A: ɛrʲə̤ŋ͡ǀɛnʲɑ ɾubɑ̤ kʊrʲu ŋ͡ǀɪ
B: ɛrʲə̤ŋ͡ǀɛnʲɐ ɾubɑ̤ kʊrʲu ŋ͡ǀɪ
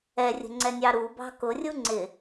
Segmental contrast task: A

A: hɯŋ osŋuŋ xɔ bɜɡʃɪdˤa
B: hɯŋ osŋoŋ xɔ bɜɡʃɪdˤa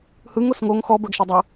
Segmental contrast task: B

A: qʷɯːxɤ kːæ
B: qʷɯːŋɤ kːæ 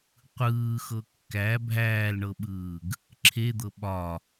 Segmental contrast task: A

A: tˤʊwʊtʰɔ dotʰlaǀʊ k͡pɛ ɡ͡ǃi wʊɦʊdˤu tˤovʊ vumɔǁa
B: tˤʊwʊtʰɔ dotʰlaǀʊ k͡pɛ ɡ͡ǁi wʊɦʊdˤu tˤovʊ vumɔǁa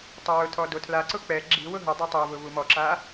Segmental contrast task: B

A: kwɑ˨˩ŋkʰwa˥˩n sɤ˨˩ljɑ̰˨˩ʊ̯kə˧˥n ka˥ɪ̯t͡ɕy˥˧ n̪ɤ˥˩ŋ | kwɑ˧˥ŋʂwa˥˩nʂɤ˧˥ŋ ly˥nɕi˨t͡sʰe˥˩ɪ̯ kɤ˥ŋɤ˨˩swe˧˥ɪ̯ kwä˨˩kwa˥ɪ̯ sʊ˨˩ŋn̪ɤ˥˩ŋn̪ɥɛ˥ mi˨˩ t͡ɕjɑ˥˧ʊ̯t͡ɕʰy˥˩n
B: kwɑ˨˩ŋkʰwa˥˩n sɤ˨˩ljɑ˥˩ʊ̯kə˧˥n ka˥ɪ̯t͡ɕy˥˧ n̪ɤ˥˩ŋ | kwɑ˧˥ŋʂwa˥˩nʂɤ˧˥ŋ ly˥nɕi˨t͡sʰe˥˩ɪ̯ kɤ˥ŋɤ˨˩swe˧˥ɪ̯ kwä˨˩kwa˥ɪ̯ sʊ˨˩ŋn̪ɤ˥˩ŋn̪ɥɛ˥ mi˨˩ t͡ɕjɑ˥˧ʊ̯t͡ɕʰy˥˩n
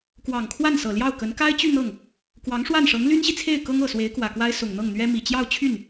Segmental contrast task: B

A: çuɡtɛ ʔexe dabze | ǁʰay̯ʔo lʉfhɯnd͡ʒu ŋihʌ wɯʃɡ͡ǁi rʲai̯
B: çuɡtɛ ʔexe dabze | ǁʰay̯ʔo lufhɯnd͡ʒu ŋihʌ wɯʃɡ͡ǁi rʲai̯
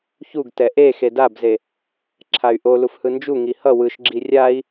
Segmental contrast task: B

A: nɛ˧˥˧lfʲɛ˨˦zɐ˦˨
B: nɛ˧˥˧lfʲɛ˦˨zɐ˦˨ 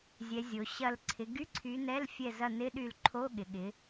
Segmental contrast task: B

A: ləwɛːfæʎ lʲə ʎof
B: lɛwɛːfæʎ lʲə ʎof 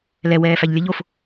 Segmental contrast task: B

